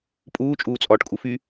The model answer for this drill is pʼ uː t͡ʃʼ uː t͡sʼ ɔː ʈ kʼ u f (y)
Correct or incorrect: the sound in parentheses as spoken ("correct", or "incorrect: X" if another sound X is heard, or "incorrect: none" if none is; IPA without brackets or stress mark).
correct